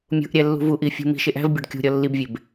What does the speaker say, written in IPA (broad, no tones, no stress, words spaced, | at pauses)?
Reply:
mʲṳʔɾʲæ lːṳvuʔi fʲṳ mi̤ʃeʔ æ̤vbʲɒɖ kʲṳɾʲɒ lːibvʲeb